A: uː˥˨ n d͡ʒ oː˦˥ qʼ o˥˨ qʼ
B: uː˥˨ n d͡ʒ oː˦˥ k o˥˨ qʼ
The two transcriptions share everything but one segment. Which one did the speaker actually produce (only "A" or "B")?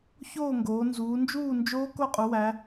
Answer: B